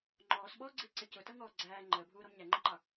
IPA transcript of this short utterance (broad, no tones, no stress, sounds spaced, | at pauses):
ŋ͡ǃ ɔː s ɓ ɔː ɡ͡ǀ i ǀ ɪ c ʊ t ʌ ŋ ɔː ɡ͡ǀ æː ŋ͡ǃ əː bʱ uː ɾ ɔ m ɲ æ ŋ͡ǃ ə ǃ ɑ